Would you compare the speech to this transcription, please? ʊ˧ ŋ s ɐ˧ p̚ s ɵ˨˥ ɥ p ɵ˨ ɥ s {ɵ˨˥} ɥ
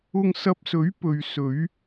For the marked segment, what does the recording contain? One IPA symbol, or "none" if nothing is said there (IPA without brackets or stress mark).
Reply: ɵ˨˧